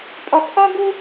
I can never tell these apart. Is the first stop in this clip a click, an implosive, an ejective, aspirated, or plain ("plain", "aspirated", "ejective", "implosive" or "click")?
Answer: ejective